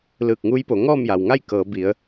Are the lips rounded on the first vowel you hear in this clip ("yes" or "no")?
no